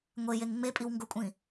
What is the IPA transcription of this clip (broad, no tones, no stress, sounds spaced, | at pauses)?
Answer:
ŋʷ e j e ŋ ŋ͡m e pʼ i w ŋ ɡ ʊ kʷʼ ĩ